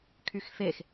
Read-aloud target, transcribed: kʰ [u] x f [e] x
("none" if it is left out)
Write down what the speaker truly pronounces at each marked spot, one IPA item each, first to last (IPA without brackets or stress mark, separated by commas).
y, e